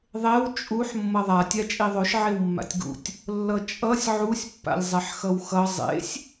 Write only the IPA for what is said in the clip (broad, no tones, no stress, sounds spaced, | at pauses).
ðˤ e w t͡ʃʼ u ħ mː ʌ ðˤ a tʲ a t͡ʃʼ i ðˤ o ʃ ʕ e w mː a̰ tʲ ɡ ṵ tʲ | lː ʌ t͡ʃʼ ʌ sʲ ʕ u sʲ pː a̰ lʲ zˤ ɛ ħ x ʌ w x ʌ zˤ ḛ sʲ